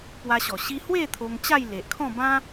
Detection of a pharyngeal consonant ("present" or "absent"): absent